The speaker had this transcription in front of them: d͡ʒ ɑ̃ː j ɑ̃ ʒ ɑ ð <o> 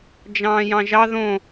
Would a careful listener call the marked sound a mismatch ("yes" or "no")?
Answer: yes